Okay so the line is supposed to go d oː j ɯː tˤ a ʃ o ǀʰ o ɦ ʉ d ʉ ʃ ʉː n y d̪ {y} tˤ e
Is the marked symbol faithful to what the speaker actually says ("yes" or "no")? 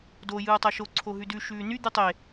yes